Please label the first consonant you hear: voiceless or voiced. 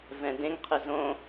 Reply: voiced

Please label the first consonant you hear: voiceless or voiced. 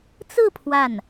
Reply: voiceless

